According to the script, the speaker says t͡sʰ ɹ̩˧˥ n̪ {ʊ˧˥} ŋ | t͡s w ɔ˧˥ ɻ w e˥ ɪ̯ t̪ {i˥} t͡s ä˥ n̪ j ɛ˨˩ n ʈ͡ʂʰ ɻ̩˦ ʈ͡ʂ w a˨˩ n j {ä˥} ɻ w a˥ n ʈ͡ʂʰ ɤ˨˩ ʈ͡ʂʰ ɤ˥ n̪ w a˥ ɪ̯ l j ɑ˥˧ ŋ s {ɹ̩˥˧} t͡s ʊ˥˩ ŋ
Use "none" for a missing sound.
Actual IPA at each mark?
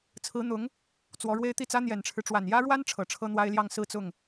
ʊ˧˥, i˥˩, ä˥, ɹ̩˥˧

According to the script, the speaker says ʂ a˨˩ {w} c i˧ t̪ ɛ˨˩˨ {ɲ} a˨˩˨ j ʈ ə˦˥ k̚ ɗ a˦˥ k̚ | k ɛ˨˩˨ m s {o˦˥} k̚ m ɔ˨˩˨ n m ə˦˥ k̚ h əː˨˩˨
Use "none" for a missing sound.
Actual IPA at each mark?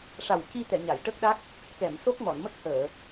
w, ɲ, o˦˥

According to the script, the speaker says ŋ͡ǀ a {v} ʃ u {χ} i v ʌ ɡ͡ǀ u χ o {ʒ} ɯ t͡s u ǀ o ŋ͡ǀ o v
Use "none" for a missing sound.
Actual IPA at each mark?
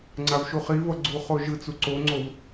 v, χ, ʒ

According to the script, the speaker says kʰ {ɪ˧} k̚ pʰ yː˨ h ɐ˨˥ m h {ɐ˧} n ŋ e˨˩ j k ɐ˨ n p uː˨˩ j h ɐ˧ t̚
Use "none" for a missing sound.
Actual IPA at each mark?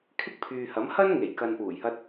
ɪ˥, ɐ˥

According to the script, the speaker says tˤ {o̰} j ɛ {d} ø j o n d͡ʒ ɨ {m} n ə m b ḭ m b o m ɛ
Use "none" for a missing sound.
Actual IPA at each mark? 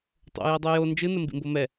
o̰, dˤ, none

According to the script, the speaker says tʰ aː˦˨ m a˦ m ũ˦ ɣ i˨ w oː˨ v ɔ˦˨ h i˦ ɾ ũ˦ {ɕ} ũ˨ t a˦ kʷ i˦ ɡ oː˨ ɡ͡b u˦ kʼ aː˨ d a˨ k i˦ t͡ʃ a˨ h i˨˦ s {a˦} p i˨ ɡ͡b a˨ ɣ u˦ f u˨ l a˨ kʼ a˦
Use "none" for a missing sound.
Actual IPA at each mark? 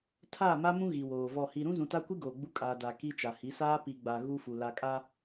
z, aː˦

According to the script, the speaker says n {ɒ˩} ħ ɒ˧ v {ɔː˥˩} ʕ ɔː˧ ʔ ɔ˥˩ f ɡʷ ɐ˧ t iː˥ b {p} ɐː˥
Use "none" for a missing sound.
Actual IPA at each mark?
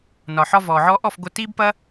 ɒ˩, ɔː˩, p

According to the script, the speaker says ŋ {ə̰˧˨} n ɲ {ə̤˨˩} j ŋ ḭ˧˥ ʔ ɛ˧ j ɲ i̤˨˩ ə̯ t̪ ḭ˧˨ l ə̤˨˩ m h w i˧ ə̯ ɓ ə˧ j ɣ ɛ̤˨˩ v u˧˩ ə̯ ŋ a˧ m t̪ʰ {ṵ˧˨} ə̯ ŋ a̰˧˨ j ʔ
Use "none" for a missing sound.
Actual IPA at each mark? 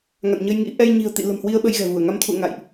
a̰˧˨, ə˧, ṵ˧˨

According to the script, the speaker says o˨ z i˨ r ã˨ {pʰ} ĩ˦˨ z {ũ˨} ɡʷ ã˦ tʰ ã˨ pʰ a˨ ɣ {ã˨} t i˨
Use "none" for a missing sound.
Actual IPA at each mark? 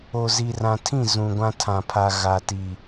tʰ, ũ˨, a˨

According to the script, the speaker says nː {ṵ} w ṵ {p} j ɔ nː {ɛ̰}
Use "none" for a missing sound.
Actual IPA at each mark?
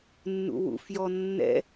ṵ, f, ɛ̰

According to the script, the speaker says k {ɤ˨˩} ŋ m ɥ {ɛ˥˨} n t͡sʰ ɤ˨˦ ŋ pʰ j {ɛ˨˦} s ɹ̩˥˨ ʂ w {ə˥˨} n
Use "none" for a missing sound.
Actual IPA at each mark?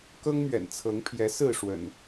ɤ˦, ɛ̰˨˩, ɛ˨˦, ə̰˨˩

